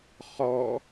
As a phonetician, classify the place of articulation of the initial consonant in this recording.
uvular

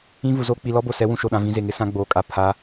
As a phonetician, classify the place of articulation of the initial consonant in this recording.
labial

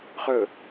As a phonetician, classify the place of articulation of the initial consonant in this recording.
uvular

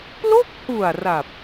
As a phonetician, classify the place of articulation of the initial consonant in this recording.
labial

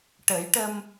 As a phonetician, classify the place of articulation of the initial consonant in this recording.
retroflex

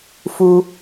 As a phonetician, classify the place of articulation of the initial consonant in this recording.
labial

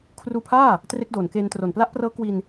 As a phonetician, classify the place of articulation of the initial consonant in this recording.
velar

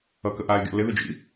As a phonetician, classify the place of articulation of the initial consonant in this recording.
velar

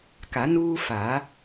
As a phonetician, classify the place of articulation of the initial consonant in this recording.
velar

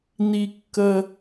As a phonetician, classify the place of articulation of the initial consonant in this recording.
alveolar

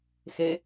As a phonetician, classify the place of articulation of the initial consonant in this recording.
velar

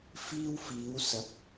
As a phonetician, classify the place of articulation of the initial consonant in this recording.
labial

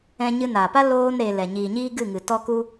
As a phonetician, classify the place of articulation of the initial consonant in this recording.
palatal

